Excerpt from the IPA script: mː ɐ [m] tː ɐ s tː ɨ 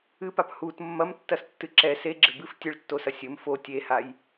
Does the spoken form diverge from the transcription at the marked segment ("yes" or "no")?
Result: no